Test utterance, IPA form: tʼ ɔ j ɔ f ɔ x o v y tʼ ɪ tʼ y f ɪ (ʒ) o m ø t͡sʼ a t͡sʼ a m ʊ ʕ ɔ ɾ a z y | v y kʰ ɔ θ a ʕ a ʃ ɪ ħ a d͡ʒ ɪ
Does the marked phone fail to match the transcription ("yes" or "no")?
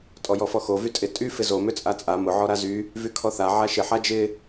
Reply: yes